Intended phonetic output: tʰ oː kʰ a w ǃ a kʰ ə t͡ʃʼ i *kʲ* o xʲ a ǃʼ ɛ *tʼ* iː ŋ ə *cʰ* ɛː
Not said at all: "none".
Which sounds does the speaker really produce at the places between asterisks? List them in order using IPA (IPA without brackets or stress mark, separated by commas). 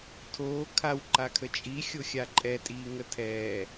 xʲ, tʼ, tʰ